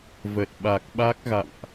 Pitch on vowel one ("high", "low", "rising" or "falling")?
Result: low